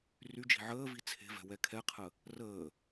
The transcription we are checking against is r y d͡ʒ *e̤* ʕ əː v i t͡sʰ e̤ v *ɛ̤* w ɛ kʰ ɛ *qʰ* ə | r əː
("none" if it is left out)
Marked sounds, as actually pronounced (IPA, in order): i̤, ɛ̤, qʰ

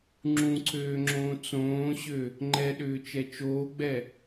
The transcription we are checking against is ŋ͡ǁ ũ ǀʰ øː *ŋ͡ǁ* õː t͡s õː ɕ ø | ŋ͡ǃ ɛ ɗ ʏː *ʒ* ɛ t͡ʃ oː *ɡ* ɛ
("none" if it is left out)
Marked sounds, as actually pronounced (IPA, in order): ŋ͡ǁ, t͡ʃ, ɡ͡b

